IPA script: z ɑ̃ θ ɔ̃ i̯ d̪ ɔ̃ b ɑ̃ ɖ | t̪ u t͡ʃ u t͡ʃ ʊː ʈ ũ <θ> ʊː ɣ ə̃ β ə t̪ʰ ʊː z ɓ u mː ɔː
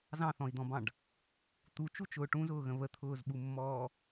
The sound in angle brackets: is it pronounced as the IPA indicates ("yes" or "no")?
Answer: no